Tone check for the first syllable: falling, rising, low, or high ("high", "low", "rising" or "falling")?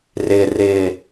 low